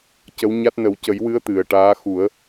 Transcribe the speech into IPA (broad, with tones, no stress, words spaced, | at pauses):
cə˧˥wɲa˦˥t̚ nə˨˩˦wcə˨˩˦jwɨ˧˥ə̯ t̪ɨ˨˩ə̯ʈaː˧˥xu˨˩˦ə̯